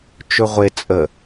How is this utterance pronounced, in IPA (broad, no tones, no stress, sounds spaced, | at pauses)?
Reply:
t͡ʃ ɵ ʁʷ e t͡sʼ ə